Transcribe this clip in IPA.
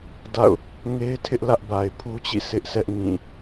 d a̰˦˨ ʊ̯ | ŋ e˦ ɪ̯ tʰ ɪ˦ ʔ l ä˦ ʔ b a˨ ɪ̯ pʰ u˦ t͡ɕ ḭ˦˨ sʰ ɪ˦ ʔ sʰ ɛ˦ ʔ ŋ ĩ˦˨

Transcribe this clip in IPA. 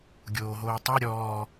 ɡʲ oː ɦ oː tˤ ʉ ɾʲ ɔː

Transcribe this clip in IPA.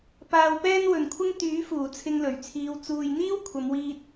p aː˧ w p ɛː˥ n w ɵ˨ n kʷʰ ɪ˥ ŋ t̪ yː˨˥ f uː˨˩ t͡sʰ ɪ˧ ŋ l ɵ˨˩ ɥ t͡sʰ iː˨˧ w t͡s uː˨ j n̪ iː˥ w kʷʰ ɐ˨˧ m w iː˧ t̚

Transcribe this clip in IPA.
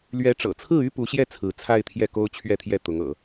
l ɥ ɛ˧˥ ʈ͡ʂ ɤ̰˨˩ t͡sʰ ɹ̩˥˩ y˥ p u˧˥ ɕ j ɛ˥˩ t͡sʰ ɹ̩˧˥ t͡sʰ a˥˧ ɪ̯ t̪ʰ j ɛ˥˩ k o˥ ʊ̯ t͡ɕʰ ɥ ɛ˥˧ t̪ʰ j ɛ˥˩ t̪ ʊ˧˥ ŋ ɤ̰˨˩˦

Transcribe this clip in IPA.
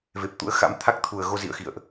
v e˨˩ p̚ t̪ ṵ˧˥ ə̯ x a̰˧˥ m t̪ʰ a˦˥ k̚ t̪ʰ u˨˩ ə̯ ɣ o˧ z ḭ˧˨ ə̯ x ḭ˧˨ ə̯ ʔ

